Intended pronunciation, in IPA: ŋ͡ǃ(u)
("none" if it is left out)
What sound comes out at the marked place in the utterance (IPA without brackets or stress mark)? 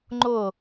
ʊ